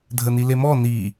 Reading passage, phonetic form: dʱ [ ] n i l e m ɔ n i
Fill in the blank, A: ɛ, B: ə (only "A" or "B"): B